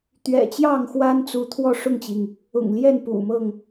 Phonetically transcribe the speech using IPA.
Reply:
t̪ ɥ ɛ̰˨˩ t͡ɕ j ɑ˥˨ ŋ x w a˦ n t͡s u˨˦ t̪ʰ w ɔ˥˨ ʂ ʊ˥˨ ŋ t͡ɕ i˩ ŋ | ʊ̰˨˩ ŋ l j ɛ˥˨ n p ṵ˨˩ m ɤ˥˨ ŋ

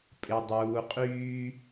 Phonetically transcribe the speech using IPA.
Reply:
pʼ ɪ˧ dˤ uː˧ qʼ yː˦

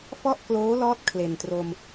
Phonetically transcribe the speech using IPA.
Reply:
f ɔ˥˩ ʔ k l oː˦˥ l ɔː˦˥ t̚ kʰ l e˨˩ n t r o˧ m

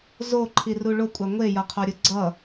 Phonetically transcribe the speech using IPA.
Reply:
z o ǃʰ i r u ɭ o kʷʼ a ŋʷ e j ʌ qʰ o ɾʲ ɯ ɡ͡ǀ ʌ

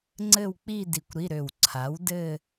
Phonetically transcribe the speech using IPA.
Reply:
ŋ͡ǀ ɘ˥˧ w k͡p i˥˧ d i˧˩ kʷ ɾ i˧˥˧ ɾ ø˧˩ w ǀʰ a˩˥ w d ɘ˥˧

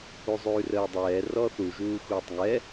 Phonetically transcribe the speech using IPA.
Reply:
u zˤ ʉː r əː dˤ ɛː r ɔ θ u ʒ uː x uː tˤ ŋ ɛ

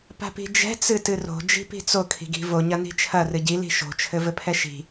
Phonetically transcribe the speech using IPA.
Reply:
p a̤ p i̤ d͡ʒ ɛ̤ t͡s ɨ t ɨ r o̤ d͡ʒ i̤ p i̤ t͡s o kʰ i̤ ɡ i̤ v o ɲ ɐ n i̤ t͡ʃʰ ɐ r ɨ ɟ i l i̤ ʃ o̤ t͡ʃʰ ɘ v ɘ pʰ ɛ ʃ i̤

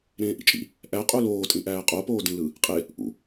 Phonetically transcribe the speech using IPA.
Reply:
ɾ ẽː ʔ ḭ t͡ʃʼ ḭ | ʔ æ qʼ u l oː tʼ ĩ ʔ æː qʼ o p oː d ĩ l ɯ | qʼ e | ʔ ṵ

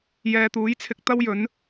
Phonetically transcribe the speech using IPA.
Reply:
j ɛː˨ t̪ uː˨˥ j t͡sʰ ɪ˧ k̚ t̪ ɐ˥ w j ɵ˨˥ n

